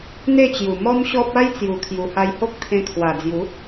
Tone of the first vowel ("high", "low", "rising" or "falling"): falling